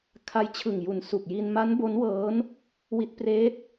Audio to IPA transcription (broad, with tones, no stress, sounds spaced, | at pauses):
kʰ a˧ j t͡ɕʰ ɯ˨˩ ŋ j u˨˩ n s u˨˩ k̚ j i˧ n m a˦˥ n b o˦˥ n w ɤː˦˥ n | w i˦˥ t̚ p r eː˦˥ t̚